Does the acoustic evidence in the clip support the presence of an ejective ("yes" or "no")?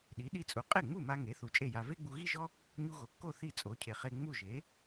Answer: yes